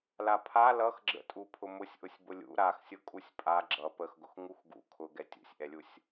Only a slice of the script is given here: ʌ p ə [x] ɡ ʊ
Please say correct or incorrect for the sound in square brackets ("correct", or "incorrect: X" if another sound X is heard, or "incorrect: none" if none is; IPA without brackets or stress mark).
correct